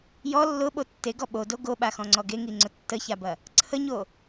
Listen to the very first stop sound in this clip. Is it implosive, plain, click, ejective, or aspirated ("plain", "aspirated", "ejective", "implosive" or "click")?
implosive